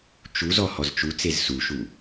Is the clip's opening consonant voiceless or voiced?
voiceless